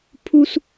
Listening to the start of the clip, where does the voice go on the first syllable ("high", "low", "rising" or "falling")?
high